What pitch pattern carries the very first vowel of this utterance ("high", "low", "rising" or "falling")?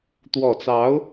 low